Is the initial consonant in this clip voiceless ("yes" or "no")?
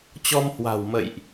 yes